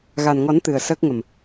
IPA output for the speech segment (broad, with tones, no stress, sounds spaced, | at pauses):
ɣ a˨˩ n ŋ ɔ˨˩˦ n t̪ ɨ˨˩ ə̯ s əː˦˥ k̚ ŋ ə˨˩ m